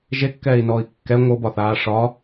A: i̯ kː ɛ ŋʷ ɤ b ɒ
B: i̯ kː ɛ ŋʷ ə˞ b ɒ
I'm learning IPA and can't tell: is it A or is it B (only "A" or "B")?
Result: A